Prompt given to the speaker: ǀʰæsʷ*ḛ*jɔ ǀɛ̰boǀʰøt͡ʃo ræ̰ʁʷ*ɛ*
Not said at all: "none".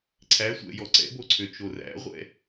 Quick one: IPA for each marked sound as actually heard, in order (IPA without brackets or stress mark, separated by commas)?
ɛ̰, ɛ̰